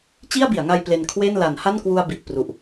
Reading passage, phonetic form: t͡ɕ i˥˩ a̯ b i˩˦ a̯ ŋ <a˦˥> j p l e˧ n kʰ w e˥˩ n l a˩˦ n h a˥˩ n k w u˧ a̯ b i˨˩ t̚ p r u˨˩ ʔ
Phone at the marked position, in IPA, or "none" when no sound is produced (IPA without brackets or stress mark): a˧